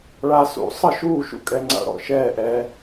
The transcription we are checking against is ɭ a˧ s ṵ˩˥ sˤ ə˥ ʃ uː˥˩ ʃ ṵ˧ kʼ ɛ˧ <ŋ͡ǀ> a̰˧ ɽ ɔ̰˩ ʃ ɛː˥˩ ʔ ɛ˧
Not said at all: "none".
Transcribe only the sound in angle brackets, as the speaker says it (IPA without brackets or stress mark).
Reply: ŋ͡ǀ